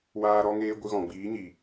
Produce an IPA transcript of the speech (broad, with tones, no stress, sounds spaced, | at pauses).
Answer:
w aː˦ ɾ ɔ˦ ŋ eː˦ ɡʷ ɨ˧ ɣ ɔ̃˨ ɡ͡b iː˨˦ ɲ iː˨